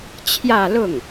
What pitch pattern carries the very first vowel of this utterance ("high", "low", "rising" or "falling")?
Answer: falling